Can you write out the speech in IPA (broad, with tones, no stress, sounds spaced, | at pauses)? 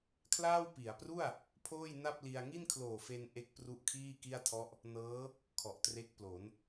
kʰ l aː˥˩ w p i˩˦ a̯ p r u˥˩ a̯ | pʰ oː˥˩ j n a˥˩ p̚ l i˧ a̯ ŋ i˥˩ n kʰ l oː˨˩ f e˧ n ʔ e˦˥ k̚ p r u˦˥ ʔ kʰ iː˥˩ k i˥˩ a̯ tʰ ɔ˦˥ ʔ | n ɤː˦˥ | kʰ ɔ˨˩ ʔ t r e˦˥ k̚ p l o˩˦ n